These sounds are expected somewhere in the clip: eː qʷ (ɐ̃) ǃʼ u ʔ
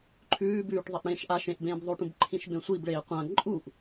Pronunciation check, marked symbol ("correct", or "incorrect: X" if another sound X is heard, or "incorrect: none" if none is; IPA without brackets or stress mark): correct